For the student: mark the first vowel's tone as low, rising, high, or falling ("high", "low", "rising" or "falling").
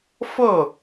falling